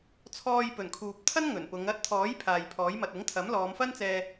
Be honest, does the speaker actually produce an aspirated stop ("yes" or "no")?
yes